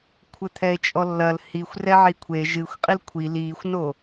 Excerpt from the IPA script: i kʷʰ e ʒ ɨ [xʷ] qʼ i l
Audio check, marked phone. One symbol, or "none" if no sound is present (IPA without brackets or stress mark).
xʷ